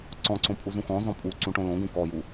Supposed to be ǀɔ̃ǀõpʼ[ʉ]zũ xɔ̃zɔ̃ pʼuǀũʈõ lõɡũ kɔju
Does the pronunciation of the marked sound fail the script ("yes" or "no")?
yes